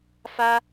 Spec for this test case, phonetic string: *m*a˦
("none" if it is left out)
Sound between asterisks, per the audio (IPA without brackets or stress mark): f